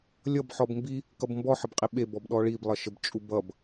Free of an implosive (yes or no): no